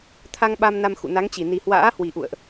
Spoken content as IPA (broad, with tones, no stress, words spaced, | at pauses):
t̪ʰa˧ŋ ɓa˧mna˧m xṵ˧˨na˨˦ŋt͡ɕi˧˩ ni˨˩hwa̰ː˧˥hwi˨˩ ʔṵ˧˨ə̯ʔ